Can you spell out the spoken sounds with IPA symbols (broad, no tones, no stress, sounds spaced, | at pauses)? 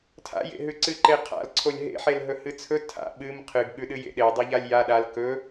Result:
tʰ a̰ j ḛ ɦ ʉ ǀ ɨ ǃ e qʰ a̰ l ǀʰ o lʲ ɦ ḛ ħ e l ɦ ɵ h ɨ t͡sʰ ɵ tʰ a̰ ɓ ɨ m qʰ ɨ ɡ ɠ ʉ ɗ ɨ j ḛ ɗ e dˤ ɨ ʎ a lʲ j a ɗ a l k ɵ